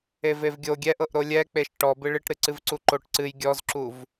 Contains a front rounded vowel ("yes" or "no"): no